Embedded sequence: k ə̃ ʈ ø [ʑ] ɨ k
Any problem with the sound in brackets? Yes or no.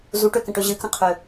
no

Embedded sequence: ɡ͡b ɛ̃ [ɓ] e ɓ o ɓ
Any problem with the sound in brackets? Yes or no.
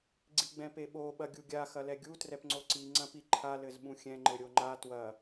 yes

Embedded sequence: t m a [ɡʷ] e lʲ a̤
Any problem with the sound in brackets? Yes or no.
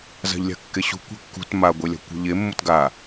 no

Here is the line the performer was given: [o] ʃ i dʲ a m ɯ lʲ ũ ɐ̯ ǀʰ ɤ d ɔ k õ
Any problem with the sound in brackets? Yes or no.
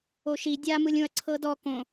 no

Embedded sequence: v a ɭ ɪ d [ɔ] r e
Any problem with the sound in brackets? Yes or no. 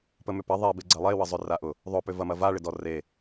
no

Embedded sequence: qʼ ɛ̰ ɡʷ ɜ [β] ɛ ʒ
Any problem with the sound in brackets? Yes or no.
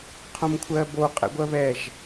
no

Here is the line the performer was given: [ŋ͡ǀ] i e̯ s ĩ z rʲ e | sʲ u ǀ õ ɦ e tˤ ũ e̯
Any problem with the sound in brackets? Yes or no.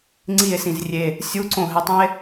no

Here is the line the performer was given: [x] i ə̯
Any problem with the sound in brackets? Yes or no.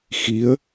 no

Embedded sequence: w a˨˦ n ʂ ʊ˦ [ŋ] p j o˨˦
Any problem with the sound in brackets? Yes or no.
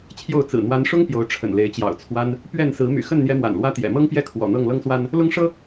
no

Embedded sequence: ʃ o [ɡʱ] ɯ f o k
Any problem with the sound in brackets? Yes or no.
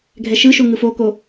yes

